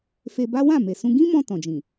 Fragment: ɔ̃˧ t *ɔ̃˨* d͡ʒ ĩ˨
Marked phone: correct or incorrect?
correct